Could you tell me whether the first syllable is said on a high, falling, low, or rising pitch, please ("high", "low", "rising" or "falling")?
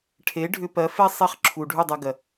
rising